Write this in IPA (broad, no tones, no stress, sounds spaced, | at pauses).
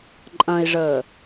ǃʼ ɐ̃ i̯ ʐ əː